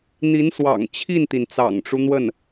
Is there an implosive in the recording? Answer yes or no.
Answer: no